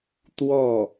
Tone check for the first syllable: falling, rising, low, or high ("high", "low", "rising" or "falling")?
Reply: falling